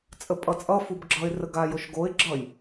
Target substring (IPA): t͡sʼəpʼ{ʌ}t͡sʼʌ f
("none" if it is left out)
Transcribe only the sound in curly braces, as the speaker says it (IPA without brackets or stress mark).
ʌ